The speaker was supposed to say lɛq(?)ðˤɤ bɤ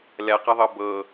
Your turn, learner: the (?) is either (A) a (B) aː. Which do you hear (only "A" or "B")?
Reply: A